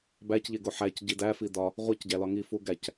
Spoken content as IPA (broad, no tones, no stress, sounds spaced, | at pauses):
b æ c ʎ e ɡ o ħ æ c ɟ i d æ f i d ɒ | ʁʷ e c ɟ æ l ɒ ŋ i f u ɡ æ c